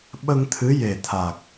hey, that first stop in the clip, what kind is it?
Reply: implosive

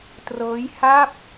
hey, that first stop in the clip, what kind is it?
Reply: plain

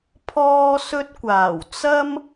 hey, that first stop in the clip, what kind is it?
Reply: aspirated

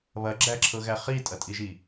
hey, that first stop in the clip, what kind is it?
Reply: click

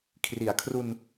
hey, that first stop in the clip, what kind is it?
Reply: aspirated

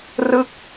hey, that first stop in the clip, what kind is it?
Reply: plain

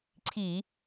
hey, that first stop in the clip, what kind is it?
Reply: click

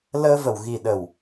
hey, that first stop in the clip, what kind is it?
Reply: implosive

